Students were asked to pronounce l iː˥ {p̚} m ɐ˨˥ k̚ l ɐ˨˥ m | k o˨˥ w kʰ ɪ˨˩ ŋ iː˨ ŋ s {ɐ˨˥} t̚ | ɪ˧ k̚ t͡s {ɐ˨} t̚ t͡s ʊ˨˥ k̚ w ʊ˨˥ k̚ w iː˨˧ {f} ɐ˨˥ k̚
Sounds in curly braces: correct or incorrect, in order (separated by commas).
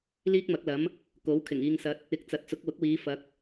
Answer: incorrect, correct, incorrect, correct